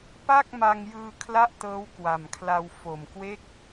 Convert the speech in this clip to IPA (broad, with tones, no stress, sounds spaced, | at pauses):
p a˥˩ k̚ m a˧ ŋ j ɯː˧ kʰ l a˥˩ ʔ t ɤː˦˥ w k w a˨˩ m kʰ l a˧ w f o˨˩ m k w e˦˥ k̚